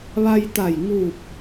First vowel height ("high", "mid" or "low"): low